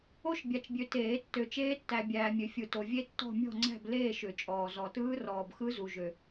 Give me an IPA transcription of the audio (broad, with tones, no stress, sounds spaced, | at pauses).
o˥˧ ʃ bʲ a˨ t͡ʃ bʲ ø˨ t eː˨˩˦ tː ø˨ t͡ʃ eː˦˥ tː æ˨ bʲ æː˨ mʲ ø˨ fʲ ɯ˨ t o˨ vʲ e˦˥ tː ɔ̤˥˧ mʲ ɔ̤˥˧ ŋ͡ǀ æ̤˥˧ b l eː˥˧ ʃ ʏ˨˩˦ t͡ʃʼ ɔː˨ z ɔ˨ t ɯː˦˥ r ɔː˨ b x ɯ˦˥ z u˨ ʒ ø˨